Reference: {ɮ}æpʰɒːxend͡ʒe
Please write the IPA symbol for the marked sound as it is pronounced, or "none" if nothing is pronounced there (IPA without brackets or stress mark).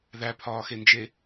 ð